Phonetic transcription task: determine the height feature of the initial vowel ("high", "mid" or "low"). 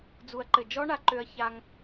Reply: high